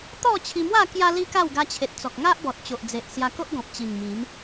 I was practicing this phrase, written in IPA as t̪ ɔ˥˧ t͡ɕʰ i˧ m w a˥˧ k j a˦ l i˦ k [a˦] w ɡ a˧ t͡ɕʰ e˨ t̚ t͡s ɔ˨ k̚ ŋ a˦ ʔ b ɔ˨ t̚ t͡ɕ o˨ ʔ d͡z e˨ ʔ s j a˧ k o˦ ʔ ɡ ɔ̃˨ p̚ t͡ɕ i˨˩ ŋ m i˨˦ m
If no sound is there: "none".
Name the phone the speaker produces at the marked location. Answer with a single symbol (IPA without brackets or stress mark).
a˥˧